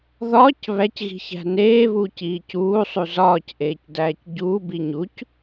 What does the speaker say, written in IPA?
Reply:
ðɒːc βæcɣi̤çæ̤ neːβuːc iːcuːsˤu zɒːcʔeːc dæːcɟuː biɲuc

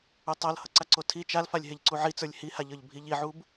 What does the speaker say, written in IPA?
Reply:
utˤʌl hʌǀaǀotʰi t͡ʃalfalʲ ɦeʎǀuʕit͡sə˞lʲ hihaʎə˞ʎ bʱiʎiʕub

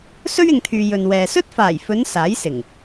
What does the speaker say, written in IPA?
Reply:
sɵ˥ɥɪ˨ŋt̪ʰyː˨ jɵ˨nwɛː˨ sɵ˥t̚faː˨˩j fɵ˨˧n saː˨˥jsɪ˨˩ŋ

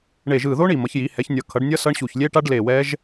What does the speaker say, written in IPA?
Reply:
ɳe˧˩ʒɯ˧˩ðo˦˥ɳi˧˩ mʌ˩˥çji˩˥ hɛ˩˥çnʲʌ˧˩kʰʌ˩˥ɖnʲʌ˦˥ sʌ˦˥ɳ ɕu˧˩çlʲe˦˥ʈa˦˥ɖ le˧˩ wɛ˦˥ʒ

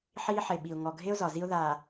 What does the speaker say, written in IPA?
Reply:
ħiː˦ħe˨ɓi˨ʊ̯ ŋɔ˨ɡʱe˦ʊ̯ zɒ˨zi˦ʊ̯ðaː˨

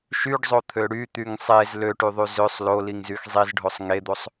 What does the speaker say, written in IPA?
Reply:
ʃyɖzˤot̪ʰø ɽyt̪yŋ sˤez løʈyðˤy zøsˤ loliŋzyx zˤizɖʱosˤ ŋed̪osˤ

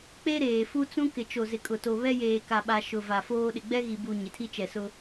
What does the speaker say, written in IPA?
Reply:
k͡pe˦ɾeː˨ fu˦t͡sũ˦ kɪ˨t͡ʃo˨zɪ˨ kʼʊ˨to˨βɛ˦ jeː˨ka˨ɓa˨ ʃʊ˨va˨foː˦ ɗɪ˨ɡ͡bɛ˦ɣi˨bu˨ ɲɪ˨tʰi˦t͡ʃɛ˨sʊ˦

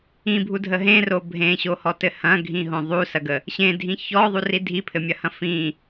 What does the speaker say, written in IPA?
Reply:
ĩbʱudʱə ɦẽro bʱẽɕohɔtɘ hɐ̃ɡʱĩɦõ ðˤusɐɡə | ɕẽdʱĩ çɔðˤuri dʱipʰɘmʲɐhɐ̃ fĩ

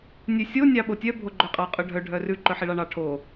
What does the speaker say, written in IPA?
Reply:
nʲʉsʲo nʲɑɓotʲœ bʱoɡ͡ǃœqʼɑ qʼœɖʱœ ɖʱœrʉ ǃœħiɭɑɳɑ ʈʰo

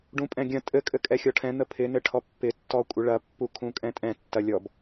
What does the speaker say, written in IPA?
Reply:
ɖũpʼɛ̃ɡʲɐ̃ tʼɘ kʼɘkʼɛxʲɔʈʰɛ̃ n̪əpʰɪ nɘʈʰɔpːɪ tːɔkʷʼɪɭɐ pːukʰũkʼɛ̃tʼɛ̃ tːɐlʲɔb

